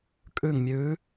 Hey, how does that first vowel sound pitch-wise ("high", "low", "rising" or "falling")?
falling